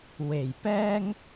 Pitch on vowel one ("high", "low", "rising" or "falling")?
low